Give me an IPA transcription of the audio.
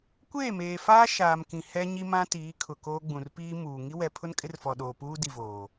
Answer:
kʷ eː˦˨ m eː˨ f aː˦ ʃ aː˨ m k ĩ˨ h ɛ˦ ɲ i˦ m ã˦ t iː˨˦ kʰ ʊ˨ k oː˦ ɡ͡b ũ˨ r p iː˦ m uː˨ ŋ i˦ w ɛ˨ pʰ ʊ˦ n kʼ ɪ˦ r f ɔ˨ ɗ oː˨ p uː˦ d i˨ v oː˨

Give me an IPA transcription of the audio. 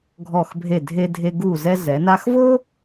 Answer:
ɡʱ ɔ˧˩ x bʱ e˧˩ dʱ e˧ dʱ e˧ ɡ u˧˩ z ɛ˧ z ɛ˩˧ n a˧ x v o˥

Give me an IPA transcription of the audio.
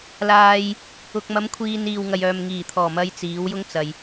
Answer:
l aː˨ j | ʊ˨ k̚ m ɐ˨˧ m kʷʰ iː˨ n iː˨ w ŋ ɐ˨ j œː˨ m ŋ iː˨˩ t̪ʰ ɔː˨˩ m ɐ˧ j t͡s iː˨˥ w j ʊ˥ ŋ t͡s ɐ˨ j

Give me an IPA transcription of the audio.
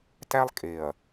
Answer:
t æ˦ lˠ kʼ e˨ ɐ̯

